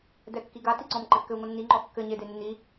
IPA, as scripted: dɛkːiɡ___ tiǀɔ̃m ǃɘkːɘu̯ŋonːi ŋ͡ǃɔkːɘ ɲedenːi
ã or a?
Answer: a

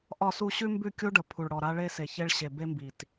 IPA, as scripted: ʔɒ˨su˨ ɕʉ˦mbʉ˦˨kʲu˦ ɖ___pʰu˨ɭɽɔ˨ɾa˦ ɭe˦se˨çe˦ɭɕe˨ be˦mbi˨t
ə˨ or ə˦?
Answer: ə˨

